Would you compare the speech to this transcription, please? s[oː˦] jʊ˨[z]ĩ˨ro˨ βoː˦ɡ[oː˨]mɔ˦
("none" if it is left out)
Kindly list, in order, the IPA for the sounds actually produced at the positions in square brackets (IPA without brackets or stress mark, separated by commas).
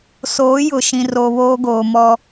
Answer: oː˨˦, ʃ, oː˨